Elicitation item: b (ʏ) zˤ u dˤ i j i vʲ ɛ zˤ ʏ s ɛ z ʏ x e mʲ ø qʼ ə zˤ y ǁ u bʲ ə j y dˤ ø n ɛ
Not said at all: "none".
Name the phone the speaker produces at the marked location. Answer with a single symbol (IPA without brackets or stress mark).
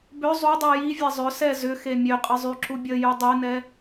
ʏ